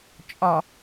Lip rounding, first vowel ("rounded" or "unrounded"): rounded